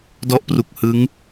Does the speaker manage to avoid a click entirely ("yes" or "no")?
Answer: yes